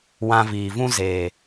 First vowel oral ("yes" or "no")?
no